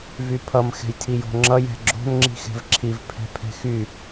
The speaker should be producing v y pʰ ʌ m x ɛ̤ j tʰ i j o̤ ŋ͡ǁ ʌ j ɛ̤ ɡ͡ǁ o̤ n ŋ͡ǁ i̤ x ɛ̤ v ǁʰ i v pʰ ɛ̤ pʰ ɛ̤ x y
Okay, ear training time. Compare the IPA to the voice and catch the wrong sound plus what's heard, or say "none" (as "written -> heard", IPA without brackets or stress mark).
none